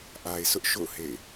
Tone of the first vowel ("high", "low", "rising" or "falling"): low